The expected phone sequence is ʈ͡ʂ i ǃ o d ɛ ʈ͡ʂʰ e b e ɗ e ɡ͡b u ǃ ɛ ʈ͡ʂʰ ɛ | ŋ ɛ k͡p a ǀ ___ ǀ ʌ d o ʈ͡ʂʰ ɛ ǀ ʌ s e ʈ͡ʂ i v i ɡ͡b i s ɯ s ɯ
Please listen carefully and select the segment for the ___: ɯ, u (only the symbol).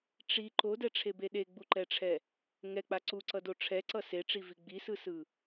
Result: u